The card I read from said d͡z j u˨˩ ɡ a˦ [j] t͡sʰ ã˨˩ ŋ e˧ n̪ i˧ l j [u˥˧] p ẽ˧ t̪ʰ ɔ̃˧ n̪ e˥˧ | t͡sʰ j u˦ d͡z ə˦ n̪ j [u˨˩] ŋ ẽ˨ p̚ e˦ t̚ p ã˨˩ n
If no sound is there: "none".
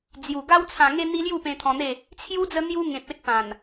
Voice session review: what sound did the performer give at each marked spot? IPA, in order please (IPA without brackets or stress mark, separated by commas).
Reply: w, u˥˧, u˦